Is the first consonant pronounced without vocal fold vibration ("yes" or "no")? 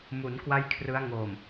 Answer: no